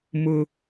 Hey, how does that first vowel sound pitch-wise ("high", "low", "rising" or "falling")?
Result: high